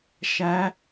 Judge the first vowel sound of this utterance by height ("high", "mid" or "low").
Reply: low